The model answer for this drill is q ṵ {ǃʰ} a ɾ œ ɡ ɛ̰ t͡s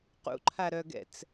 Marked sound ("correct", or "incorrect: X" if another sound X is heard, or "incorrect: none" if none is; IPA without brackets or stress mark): correct